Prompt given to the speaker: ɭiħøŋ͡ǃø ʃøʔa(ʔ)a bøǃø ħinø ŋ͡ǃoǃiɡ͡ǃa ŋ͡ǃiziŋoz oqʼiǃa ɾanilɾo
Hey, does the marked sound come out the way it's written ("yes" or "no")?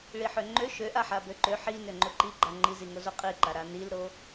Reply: no